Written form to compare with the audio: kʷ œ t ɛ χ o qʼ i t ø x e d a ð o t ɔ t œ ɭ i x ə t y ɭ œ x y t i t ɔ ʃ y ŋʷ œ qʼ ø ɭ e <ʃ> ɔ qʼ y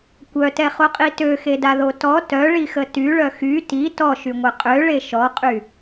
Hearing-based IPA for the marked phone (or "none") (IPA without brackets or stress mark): ʃ